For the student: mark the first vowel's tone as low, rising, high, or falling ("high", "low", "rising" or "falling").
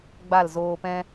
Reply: falling